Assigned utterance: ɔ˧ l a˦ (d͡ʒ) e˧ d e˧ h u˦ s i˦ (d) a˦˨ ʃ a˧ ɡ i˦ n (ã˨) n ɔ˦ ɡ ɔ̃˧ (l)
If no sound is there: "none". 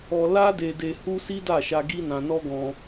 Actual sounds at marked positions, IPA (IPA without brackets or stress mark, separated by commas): d, d, ã˧, none